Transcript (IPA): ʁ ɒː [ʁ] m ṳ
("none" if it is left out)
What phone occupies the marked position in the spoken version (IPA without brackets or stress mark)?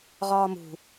none